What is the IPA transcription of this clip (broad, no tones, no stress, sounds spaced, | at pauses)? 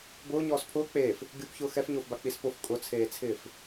b ʊː ɲ ɔː s pʰ ʊː k͡p eː f | ɡʲ u p ç ʊː x ɛ f ɲ ʊː f b a k͡p i s p ʊ f kʼ ʊ t͡sʰ eː t͡sʰ ɪː f